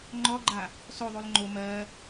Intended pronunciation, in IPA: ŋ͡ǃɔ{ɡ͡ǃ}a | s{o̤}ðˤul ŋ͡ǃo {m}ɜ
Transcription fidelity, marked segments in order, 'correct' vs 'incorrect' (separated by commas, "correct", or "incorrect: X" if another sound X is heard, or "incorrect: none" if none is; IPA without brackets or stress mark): correct, incorrect: o, correct